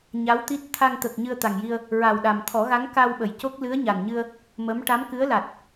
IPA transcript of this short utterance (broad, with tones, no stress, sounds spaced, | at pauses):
ɲ a˧˥ w t̪ i˦˥ t̚ t̪ʰ a˧ ŋ t̪ ə˨˩ k̚ ɲ ɨ˧ ə̯ t̪ a˨˩ ŋ j i˧ ə̯ | ɹ a˨˩ w ɗ a˨˩ m t̪ʰ ɔ˨˩˦ ɣ a˧˥ ŋ k a˧ w ɓ ə˨˩˨ j c o˦˥ k̚ l ɨ˧˥ ə̯ ɲ a˨˩ n ɲ ɨ˧ ə̯ | m ə˧˥ m ʈ a˧˥ m k ɨ˧˥ ə̯ l a˨˩ t̚